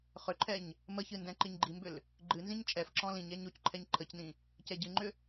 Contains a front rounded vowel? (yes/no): yes